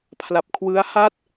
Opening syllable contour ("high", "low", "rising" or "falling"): low